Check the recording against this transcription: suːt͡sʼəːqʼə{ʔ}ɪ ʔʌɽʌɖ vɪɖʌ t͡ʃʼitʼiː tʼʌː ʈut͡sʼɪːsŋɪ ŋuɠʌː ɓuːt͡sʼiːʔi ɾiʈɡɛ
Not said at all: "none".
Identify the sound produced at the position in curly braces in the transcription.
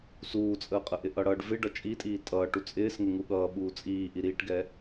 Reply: ʔ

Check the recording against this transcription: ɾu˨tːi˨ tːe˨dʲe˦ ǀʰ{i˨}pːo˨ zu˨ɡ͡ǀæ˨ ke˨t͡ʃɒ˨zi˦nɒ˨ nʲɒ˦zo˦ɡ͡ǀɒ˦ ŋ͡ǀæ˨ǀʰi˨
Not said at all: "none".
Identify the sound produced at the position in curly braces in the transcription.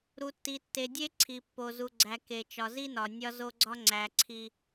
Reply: i˨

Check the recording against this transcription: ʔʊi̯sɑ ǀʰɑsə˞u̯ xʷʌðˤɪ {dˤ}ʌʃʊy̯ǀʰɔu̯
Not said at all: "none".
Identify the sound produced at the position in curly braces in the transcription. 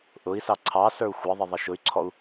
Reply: ðˤ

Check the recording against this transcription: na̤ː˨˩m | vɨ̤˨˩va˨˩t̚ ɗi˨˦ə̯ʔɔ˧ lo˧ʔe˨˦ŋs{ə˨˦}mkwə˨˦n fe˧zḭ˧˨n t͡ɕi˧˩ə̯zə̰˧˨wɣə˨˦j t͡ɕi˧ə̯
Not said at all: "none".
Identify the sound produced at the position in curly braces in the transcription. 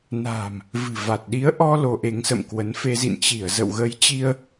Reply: ə̰˧˨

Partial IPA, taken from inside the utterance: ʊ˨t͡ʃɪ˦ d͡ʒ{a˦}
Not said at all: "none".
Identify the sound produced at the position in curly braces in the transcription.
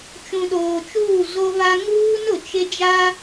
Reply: a˦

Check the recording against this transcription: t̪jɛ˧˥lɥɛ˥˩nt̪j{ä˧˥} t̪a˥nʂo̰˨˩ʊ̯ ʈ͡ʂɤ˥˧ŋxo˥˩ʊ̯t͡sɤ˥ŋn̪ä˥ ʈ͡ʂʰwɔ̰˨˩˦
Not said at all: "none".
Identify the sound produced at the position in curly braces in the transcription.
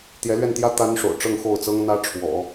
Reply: ä˥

